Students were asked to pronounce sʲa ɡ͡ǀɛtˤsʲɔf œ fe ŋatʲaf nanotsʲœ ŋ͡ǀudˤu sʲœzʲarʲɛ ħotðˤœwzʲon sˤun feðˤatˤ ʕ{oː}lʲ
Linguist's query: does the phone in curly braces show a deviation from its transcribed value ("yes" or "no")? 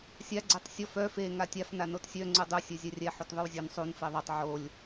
yes